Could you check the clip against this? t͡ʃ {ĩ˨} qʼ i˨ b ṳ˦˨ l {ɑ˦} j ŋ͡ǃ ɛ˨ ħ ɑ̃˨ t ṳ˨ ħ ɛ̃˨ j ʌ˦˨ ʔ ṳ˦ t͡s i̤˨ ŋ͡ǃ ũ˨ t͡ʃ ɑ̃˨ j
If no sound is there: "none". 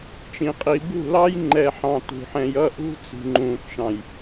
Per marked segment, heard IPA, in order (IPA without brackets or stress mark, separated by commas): ĩ˨, ɑ˦